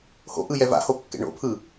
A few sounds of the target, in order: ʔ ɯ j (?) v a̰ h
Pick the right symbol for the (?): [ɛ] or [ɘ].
ɛ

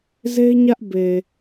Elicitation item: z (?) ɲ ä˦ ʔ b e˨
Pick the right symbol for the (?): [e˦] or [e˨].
e˦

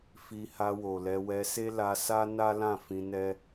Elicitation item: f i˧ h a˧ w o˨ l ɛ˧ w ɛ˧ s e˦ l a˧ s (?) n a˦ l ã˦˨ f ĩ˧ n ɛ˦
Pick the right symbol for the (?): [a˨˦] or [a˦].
a˦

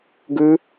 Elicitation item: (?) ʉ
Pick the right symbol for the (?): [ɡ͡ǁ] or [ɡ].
ɡ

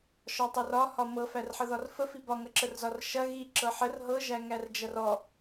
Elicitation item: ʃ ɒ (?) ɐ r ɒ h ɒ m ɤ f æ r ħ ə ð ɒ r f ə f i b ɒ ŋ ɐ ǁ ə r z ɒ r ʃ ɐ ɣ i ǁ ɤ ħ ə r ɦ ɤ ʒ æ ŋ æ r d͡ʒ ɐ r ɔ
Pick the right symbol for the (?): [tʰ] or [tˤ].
tˤ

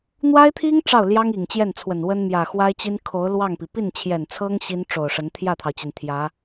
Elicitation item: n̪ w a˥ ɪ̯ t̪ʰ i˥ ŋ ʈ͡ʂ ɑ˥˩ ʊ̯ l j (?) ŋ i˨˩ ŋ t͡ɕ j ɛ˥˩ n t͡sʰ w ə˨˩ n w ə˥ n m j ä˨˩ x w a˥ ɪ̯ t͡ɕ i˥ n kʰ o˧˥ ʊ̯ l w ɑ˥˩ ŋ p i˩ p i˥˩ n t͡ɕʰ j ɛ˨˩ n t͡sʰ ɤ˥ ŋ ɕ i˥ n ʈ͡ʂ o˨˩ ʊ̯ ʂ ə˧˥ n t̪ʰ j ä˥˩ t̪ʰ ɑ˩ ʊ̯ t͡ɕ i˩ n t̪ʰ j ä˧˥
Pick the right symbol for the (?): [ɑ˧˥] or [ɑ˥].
ɑ˥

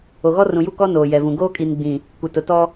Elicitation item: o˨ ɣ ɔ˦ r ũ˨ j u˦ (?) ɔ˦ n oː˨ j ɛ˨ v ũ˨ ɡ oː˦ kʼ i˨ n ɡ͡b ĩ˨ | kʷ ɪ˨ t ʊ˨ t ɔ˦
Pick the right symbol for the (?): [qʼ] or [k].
k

